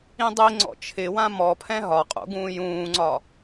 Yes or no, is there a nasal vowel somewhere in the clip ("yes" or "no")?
yes